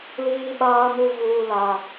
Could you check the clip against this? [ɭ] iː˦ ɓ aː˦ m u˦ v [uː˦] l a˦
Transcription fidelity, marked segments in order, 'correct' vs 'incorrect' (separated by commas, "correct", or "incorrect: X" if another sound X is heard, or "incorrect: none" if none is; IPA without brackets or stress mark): incorrect: l, correct